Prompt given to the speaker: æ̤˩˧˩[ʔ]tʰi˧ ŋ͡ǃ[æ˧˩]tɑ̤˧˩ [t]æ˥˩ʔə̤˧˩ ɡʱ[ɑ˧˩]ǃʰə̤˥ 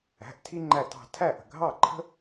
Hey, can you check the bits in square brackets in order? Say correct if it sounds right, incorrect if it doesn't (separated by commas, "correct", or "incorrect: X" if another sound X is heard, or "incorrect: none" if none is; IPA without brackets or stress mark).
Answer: correct, correct, incorrect: tʰ, incorrect: ɑ˥˩